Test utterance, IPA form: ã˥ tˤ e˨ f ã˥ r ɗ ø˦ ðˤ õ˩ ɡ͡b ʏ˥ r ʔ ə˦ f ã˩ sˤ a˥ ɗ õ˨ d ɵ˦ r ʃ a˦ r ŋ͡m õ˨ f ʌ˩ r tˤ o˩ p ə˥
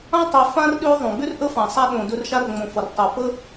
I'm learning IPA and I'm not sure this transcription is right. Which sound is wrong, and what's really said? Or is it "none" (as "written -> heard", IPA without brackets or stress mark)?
none